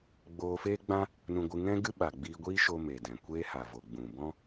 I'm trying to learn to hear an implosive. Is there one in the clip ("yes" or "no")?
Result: yes